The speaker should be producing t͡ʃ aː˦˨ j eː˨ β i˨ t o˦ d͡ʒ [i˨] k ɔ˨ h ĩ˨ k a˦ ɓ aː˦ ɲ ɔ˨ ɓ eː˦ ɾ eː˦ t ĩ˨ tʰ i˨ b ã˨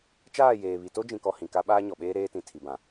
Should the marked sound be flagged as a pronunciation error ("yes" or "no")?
yes